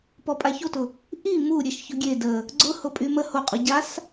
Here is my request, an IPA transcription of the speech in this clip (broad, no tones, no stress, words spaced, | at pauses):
pɔpʼaçotʊ | ʔi mu ɾʲeʃçʊɡʲe də | ɡ͡ǀʊ hʊpʼymə hoqʼu ɟas